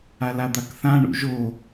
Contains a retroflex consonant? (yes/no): yes